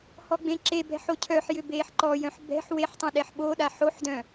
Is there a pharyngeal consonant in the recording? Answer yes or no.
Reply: yes